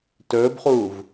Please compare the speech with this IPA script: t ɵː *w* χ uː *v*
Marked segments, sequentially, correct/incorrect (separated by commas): incorrect, correct